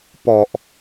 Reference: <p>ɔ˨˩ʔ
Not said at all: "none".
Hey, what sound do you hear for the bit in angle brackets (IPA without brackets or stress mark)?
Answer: p